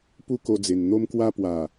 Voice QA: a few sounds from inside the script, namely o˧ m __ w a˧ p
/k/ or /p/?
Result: k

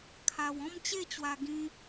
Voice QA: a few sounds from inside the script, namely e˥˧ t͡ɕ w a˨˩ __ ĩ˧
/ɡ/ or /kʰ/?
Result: ɡ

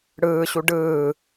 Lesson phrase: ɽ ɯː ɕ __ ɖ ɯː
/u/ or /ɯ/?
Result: u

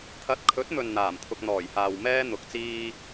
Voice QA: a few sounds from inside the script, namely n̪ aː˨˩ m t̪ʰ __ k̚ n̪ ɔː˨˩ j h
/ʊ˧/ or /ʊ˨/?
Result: ʊ˧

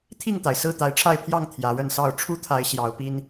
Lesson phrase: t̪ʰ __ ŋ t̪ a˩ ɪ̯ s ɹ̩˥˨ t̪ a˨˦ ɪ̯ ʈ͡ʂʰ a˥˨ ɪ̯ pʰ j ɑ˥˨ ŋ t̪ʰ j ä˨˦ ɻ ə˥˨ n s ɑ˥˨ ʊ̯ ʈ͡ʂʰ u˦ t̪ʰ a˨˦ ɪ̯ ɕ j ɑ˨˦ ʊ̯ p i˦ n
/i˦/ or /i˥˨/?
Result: i˥˨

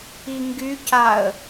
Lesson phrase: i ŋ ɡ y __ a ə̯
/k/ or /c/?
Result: c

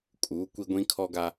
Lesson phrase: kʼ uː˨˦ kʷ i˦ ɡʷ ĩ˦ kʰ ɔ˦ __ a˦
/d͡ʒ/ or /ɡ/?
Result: ɡ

